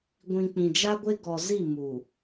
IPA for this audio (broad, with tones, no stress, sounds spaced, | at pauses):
ɡʷ ĩ˨ k͡p ĩ˨ d͡ʒ a˦ ɡʷ e˦ ɡ ɔ˨ z i˦˨ m u˨